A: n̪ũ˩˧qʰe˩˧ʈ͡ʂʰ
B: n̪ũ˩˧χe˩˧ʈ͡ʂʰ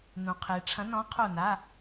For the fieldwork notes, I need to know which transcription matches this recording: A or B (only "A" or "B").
A